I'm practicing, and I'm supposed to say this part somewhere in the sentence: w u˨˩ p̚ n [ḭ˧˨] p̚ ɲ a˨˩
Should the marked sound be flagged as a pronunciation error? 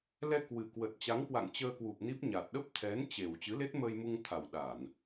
yes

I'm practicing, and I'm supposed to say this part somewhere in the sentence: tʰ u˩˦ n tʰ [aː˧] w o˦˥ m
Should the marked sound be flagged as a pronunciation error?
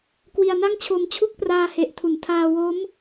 no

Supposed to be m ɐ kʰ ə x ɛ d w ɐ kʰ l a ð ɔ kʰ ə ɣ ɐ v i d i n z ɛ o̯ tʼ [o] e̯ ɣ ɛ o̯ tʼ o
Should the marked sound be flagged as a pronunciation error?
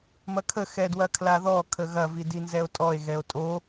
yes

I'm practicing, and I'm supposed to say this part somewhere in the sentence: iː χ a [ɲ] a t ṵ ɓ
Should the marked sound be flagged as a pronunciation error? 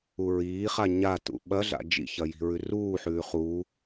no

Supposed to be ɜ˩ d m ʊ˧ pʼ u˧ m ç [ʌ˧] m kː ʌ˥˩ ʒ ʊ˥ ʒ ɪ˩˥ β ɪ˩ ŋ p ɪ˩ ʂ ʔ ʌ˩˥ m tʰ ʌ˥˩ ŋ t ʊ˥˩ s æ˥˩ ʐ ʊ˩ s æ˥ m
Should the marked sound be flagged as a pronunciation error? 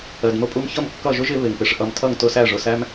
yes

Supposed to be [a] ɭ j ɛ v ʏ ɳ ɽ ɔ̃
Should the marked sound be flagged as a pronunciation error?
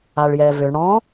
no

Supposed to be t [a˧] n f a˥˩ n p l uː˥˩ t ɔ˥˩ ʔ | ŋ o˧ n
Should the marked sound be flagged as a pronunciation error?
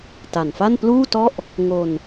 yes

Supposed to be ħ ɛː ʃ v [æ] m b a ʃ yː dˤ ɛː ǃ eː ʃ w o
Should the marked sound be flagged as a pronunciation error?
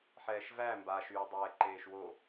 no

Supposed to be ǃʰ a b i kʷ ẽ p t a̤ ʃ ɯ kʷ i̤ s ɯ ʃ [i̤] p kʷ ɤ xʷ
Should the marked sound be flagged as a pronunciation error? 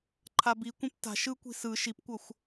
yes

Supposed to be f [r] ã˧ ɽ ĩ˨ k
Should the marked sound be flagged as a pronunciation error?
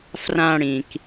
no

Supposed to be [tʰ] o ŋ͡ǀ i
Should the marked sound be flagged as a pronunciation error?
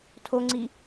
no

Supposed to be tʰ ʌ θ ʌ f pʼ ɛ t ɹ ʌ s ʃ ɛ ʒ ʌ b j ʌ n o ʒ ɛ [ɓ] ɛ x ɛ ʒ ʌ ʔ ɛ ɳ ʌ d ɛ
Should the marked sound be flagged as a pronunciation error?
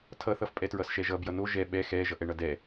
no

